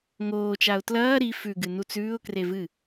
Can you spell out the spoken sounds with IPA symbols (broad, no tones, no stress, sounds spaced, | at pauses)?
ŋ oː t͡ʃ a ʊ̯ t l ɐː ɾ i f ʉ ɡ ɨ n u t͡s ʉː ʊ̯ k r e v ɨ